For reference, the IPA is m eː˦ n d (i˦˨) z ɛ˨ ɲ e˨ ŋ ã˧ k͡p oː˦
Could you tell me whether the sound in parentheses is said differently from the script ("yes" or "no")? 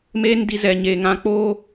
yes